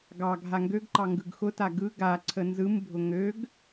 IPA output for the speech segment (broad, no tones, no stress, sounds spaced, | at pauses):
ɡ ɑ ɡʱ a ŋ ɡ ø ɡ ǃ ɑ ŋ ɡ ɯ ɡ x ʊ t a ɡ ɯ ɡ a ǀʰ ə n z ɯ m bʱ ʊ ŋ ø ɡ